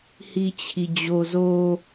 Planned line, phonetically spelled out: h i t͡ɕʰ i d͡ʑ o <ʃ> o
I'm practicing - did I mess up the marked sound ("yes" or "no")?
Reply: yes